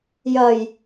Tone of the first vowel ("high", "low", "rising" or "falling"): low